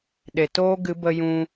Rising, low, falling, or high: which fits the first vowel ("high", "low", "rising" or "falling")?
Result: low